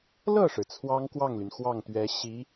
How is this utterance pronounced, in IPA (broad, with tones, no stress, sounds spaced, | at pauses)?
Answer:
l ɤ˥˩ ʂ ɻ̩˩ t͡sʰ w ɑ˥ ŋ k w ɑ˥˩ ŋ l y˩ n x w ɑ˥˩ ŋ t̪ ɥ ɛ˧˥ ɕ i˧˥